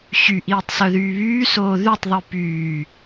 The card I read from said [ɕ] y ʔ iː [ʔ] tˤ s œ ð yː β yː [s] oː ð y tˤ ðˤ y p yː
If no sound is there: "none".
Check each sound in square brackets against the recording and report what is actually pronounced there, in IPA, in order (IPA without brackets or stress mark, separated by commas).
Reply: ɕ, none, s